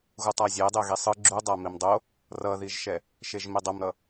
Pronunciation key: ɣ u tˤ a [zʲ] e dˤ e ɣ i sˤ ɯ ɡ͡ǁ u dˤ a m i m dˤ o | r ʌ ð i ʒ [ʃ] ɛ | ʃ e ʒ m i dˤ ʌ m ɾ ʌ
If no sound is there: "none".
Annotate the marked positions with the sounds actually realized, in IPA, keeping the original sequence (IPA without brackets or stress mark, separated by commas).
zʲ, ʃ